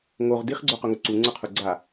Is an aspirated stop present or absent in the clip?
present